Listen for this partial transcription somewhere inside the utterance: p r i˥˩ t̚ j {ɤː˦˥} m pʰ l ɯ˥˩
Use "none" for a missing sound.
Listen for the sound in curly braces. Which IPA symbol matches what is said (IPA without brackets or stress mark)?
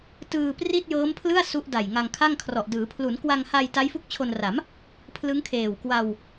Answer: ɤː˦˥